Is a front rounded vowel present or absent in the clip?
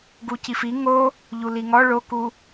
absent